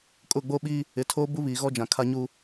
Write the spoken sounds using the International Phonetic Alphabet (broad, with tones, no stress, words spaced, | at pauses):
kʼʊ˦˨ɡ͡bo˦ɓi˦ | ɪ˨˦tʰoː˦bu˦ βiː˨ɣɔ˦d͡ʒã˨ kʰa˦ɲu˦